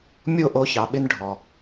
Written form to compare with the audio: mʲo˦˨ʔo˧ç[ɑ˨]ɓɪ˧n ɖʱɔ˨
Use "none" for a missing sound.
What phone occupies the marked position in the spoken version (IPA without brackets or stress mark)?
ɑ˨